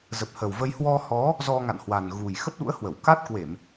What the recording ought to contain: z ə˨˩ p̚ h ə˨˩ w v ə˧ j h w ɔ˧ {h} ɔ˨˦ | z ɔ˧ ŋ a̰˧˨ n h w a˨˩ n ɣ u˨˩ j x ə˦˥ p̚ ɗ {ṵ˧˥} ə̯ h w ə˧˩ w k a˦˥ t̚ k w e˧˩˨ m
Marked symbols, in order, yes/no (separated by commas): yes, yes